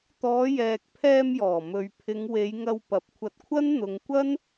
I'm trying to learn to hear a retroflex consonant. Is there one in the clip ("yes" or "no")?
no